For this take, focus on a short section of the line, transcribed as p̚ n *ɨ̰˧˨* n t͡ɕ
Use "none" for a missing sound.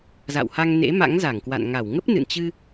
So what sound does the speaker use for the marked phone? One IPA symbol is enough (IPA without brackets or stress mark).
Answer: ɨ̰˧˨